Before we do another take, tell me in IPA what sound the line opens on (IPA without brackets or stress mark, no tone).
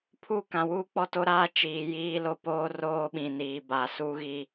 pʰ